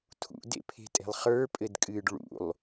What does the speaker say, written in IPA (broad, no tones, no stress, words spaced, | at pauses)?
tʰṵdḛpʰe̤tʼe̤lˠ χə˞pʼɘdkʼɨːɖ ɭṵlˠ